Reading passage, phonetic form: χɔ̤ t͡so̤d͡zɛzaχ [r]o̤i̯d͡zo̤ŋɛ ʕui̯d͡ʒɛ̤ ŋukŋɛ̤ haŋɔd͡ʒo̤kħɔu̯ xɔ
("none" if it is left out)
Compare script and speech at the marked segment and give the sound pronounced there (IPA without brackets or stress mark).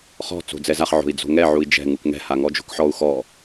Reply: ʕ